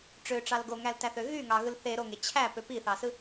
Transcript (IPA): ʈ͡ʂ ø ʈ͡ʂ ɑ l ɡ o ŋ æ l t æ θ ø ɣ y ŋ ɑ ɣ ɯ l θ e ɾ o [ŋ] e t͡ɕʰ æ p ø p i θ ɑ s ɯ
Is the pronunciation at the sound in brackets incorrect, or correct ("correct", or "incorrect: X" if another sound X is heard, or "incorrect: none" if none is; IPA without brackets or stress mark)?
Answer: correct